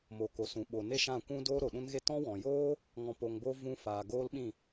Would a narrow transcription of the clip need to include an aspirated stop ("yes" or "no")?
no